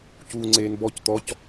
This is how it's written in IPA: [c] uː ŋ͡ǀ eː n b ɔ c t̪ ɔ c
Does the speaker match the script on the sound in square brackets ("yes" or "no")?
yes